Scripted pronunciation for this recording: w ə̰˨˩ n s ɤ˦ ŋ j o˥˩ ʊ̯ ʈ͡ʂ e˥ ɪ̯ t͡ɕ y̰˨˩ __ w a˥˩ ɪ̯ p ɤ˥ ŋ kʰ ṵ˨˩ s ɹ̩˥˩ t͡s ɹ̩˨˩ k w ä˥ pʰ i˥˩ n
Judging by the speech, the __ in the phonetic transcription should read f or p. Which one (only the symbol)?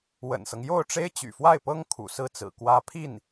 f